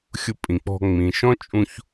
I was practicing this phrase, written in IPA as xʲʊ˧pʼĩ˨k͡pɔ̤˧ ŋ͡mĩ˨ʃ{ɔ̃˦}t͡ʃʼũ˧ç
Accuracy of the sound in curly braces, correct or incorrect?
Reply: correct